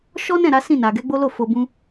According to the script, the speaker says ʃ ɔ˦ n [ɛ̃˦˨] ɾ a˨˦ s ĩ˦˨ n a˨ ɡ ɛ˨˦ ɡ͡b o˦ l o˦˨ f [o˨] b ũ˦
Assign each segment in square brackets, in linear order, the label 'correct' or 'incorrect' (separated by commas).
correct, incorrect